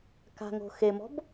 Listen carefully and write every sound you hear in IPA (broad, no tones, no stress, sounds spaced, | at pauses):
k a̤ ŋ o̤ x e m ɔ̤ b